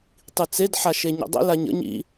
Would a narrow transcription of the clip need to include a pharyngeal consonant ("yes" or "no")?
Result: yes